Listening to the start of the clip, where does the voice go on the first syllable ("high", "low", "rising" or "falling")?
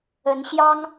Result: rising